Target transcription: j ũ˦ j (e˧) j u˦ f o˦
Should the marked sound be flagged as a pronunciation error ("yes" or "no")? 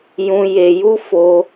no